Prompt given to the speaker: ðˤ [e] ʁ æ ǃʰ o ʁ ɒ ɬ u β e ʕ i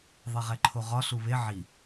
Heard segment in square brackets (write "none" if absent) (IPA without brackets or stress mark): e